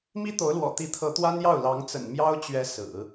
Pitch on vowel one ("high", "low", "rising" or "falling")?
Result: high